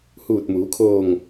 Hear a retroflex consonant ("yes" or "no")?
no